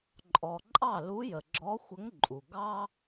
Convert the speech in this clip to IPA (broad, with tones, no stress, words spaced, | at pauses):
ǃʼɔ˨ǃʼɑ˥˩ lu˧˥jə˨ɡ͡ǁɔ˧˥ xʷə˧˥ŋǃʼu˨ ɡɑ˥